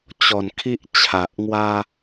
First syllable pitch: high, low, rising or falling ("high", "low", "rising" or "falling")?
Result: low